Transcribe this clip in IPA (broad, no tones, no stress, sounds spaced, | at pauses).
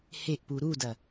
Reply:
h e ʔ p u ɾ u d ɐ